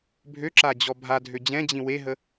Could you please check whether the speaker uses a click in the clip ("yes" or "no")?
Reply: yes